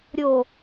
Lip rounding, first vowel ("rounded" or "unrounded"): rounded